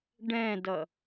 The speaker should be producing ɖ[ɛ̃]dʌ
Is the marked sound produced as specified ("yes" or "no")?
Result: yes